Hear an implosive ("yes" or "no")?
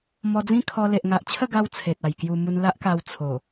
no